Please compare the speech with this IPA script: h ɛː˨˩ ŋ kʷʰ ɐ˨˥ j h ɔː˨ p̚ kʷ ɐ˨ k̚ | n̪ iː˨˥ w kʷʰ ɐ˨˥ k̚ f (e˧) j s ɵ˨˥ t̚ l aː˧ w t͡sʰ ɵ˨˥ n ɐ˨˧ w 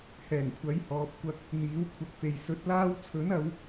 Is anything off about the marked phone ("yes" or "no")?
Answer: yes